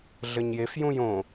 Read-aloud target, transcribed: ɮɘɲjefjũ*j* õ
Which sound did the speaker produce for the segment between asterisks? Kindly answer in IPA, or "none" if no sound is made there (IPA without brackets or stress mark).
j